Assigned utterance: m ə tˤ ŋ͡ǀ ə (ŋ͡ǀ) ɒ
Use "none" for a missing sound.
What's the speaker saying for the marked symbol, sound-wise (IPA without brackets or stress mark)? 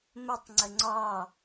ŋ͡ǀ